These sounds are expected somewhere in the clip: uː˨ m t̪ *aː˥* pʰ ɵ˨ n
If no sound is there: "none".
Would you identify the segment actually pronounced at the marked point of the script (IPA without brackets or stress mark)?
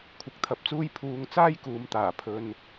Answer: aː˨˩